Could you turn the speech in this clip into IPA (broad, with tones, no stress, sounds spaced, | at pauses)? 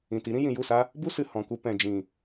ĩ˨ t i˨˦ ɾ ĩ˦ j ĩ˨ j u˦˨ s a˦ | b u˦ s ɨ˨ h ɔ̃˨ k u˧ p ɛ̃˨ d͡ʒ ĩ˨